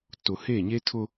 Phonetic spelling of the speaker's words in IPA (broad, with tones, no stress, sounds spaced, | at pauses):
t ʊ˨ h e˦˨ ɲ e˦ tʰ ʊ˦